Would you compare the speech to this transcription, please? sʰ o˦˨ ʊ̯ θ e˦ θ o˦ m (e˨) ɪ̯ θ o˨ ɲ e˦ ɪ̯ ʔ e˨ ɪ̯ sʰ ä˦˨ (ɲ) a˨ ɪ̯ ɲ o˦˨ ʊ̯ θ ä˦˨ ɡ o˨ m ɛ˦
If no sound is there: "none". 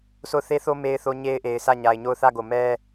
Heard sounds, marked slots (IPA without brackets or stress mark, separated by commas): e˨, ɲ